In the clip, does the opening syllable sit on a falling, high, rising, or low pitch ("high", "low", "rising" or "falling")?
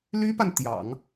high